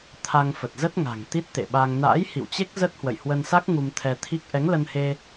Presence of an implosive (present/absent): present